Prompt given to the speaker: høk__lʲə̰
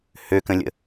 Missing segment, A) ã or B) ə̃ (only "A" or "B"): B